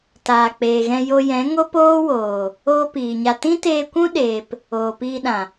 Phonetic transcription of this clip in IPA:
taː˨ k͡peː˨ɣɛ̃˧jo˧jɛ̃˨˦ ŋo˦poː˦ woː˨ | oː˦piː˨ɲa˧ tĩ˦teː˧kʷũ˦ɗeː˨p | oː˨piː˧ɗã˨

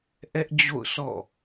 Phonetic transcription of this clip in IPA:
ʔɛ˦ʔd͡ʑo̰˦˨ʊ̯ sɔ̰˦˨

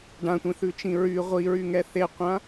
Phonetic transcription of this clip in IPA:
ɖãtʷĩθʉt͡ʃĩ ɹy ʁʷiɹyŋɛ θeqʷã

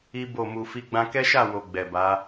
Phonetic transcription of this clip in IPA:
i˦ bo˦˨mu˧fi˦ ɡ͡bã˧kɛ˦ʃa˦˨wo˨ ɡ͡bɛ˨ba˨˦

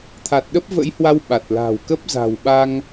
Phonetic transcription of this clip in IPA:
t̪ʰa˨˩t̚ɗə˦˥p̚və̰˧˥jhwa˧w ɓa˨˩t̚la̤˨˩w kə˦˥p̚za̤˨˩wɓa˧ŋ

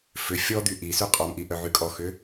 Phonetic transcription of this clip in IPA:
fʏ fʲɔd̪y ʔisy qʼɔmʔiʔœʕy kʼɔxʏ

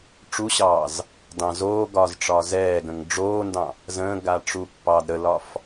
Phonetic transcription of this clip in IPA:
ʈ͡ʂuɕɑːz | dɑ̃zoːɡɒːz ʈ͡ʂɒːzɛːɡə̃ŋ ɖ͡ʐoːndɑ̃ | zə̃ːɡa ʈ͡ʂupːɑːdɾəlɒf

